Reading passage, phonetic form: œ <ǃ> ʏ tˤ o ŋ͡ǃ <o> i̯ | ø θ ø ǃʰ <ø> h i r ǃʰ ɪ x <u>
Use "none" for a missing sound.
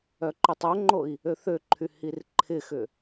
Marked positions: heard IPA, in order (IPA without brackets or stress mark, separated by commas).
ǃ, o, y, ʏ